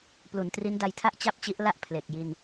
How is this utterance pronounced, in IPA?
plu˩˦ntri˦˥nda˧jtʰa˥˩ʔ t͡ɕa˥˩p̚t͡ɕi˦˥ʔla˥˩ʔ pʰle˨˩k̚ ji˧n

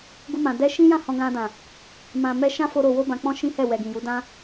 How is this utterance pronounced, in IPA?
ɡu˧mã˨ dɛ˧ʃĩ˦jã˦˨ hɔ̃˧ɡã˧dã˨ | mã˨ mɛ˧ʃã˦fo˧ ɾo˨wo˧bã˨k͡pɔ̃˧ ʃĩ˦hɛ˦˨ wɛ˨ɡĩ˨ju˨˦ dã˦

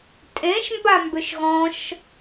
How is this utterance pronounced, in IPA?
tʼẽʃmbambʏʃ ɣɔ̃ʃ

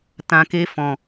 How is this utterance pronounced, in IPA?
tã˨ke˧ fɔ̃˨

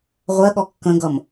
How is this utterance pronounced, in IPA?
ʁʷɜɠɔ kːə̃ɡʌm

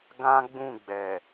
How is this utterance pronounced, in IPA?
ɡã˦ɡ͡bũ˦˨ɡ͡bɛ˨

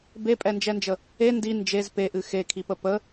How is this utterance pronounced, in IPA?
bepʼɛnd͡ʒɛnd͡ʒə | e ndi nd͡ʒez peʔɨ xekʰipə pə

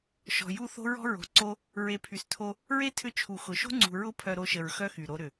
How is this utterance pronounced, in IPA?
ʃɔ̤˨ju˦˨ θo̤˦ɹɔ̤˦ɹo̤˨ǀo˦ | ɹe˧pʰy˧stʰo˦ | ɹe˦tʰʏ˧t͡ʃʰu˨ xʊ˨ʃo̤˦ŋ͡ǀṳ˨ ɹʊ˦ pʰœ˧ɾo˧ʃə˨ɹ xœ˦xy˨ ɾo˧ɾʏ˨

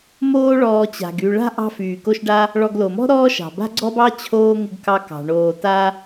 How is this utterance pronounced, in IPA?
moː˦ ɭɔː˨ t͡ɕa̤˩ɡy˨ɭa̤˥ ʔɑ̤˦fyː˩ko˦ʃɖa˥ | ɭɔ˨ɡlo˩mɔ̤˥ ɾɔː˥ʃɑ̤˩ba̤˥ ɡ͡ǀɔ˥bɑ˥t͡ɕʰoː˦ ŋɪ˦ɡkɑ˦kɑ̤˩ ɳoː˨ta˥

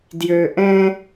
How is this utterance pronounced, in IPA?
djø˨ʔɛ̃˦

